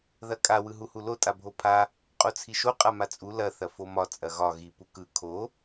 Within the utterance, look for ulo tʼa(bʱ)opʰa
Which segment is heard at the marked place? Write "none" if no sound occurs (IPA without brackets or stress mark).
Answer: bʱ